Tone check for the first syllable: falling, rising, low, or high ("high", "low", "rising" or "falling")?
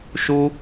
high